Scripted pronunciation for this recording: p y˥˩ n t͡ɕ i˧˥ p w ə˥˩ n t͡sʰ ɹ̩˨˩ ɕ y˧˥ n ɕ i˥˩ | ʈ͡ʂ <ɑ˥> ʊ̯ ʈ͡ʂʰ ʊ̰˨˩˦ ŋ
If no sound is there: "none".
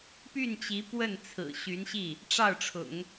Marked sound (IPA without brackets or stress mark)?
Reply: ɑ˥˩